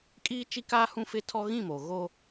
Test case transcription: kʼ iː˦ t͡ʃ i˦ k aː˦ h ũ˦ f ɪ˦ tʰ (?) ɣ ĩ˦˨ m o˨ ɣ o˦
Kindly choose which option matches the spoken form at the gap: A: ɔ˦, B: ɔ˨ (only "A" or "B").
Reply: A